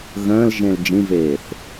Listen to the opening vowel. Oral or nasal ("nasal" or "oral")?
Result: nasal